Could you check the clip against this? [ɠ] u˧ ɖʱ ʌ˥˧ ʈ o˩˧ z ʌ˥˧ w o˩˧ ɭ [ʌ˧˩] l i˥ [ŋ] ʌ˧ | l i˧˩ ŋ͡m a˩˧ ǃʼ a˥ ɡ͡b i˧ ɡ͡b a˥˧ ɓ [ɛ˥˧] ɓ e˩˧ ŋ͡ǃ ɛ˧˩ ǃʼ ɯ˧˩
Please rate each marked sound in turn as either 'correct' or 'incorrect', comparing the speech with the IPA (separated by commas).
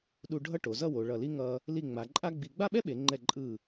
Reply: incorrect, correct, correct, incorrect